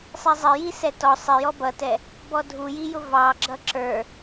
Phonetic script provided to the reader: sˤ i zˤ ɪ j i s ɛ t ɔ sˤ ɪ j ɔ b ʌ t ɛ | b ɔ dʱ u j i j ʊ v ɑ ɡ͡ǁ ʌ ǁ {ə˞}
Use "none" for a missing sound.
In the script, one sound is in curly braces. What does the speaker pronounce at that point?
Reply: ə˞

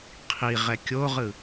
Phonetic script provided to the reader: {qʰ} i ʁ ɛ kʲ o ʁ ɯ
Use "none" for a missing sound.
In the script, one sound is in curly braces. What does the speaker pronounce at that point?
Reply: qʰ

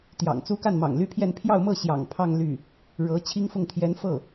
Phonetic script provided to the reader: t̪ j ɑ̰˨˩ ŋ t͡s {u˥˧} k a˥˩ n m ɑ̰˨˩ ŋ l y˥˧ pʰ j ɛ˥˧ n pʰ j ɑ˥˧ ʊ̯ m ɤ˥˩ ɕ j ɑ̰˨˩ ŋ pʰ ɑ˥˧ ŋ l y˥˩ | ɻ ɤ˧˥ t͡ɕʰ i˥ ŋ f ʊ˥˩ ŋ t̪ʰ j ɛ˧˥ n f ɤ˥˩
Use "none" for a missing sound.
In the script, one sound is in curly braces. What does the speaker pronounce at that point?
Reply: u˥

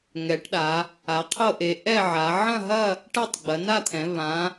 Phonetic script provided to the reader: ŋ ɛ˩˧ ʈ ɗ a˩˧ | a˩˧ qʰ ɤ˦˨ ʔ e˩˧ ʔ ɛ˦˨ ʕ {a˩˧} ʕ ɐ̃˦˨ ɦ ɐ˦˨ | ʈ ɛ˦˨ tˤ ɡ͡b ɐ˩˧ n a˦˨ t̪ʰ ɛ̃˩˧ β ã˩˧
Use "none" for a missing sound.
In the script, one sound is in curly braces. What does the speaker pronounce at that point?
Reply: a˩˧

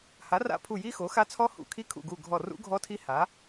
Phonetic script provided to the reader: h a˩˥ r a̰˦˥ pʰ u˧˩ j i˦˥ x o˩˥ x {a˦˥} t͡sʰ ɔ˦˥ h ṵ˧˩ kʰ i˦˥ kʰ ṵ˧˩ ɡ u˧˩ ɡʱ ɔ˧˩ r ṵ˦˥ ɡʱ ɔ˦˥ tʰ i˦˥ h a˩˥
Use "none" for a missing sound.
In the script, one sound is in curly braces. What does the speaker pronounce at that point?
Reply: a˦˥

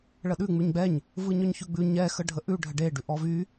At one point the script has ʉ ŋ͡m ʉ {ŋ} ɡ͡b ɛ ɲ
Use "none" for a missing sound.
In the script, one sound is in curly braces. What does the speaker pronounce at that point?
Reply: ɲ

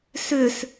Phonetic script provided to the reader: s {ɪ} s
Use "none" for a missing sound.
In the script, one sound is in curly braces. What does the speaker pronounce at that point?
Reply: ʏ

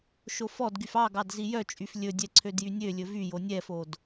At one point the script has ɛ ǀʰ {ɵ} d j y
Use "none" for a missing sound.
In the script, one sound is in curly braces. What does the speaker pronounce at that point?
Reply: ø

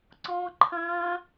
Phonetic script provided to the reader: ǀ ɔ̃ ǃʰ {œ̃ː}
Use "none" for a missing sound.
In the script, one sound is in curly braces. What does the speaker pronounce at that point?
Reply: œ̃ː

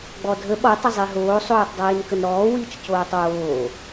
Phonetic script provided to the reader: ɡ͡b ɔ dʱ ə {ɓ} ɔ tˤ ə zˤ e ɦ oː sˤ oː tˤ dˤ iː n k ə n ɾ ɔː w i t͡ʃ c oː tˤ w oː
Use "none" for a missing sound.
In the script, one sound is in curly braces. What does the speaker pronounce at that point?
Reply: ɓ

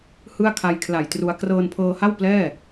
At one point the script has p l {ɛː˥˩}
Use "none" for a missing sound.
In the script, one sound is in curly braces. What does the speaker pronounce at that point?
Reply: ɛː˥˩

